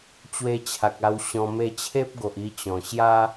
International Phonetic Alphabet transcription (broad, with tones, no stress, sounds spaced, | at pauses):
t͡ɕ w e˧ t͡ɕʰ a˨ k̚ a˧ w ɕ ɔ̃˧ m e˧ t͡ɕʰ e˦ p̚ ɡ o˨ ʔ i˧ t͡ɕ ɔ̃˨˩ ɕ j a˦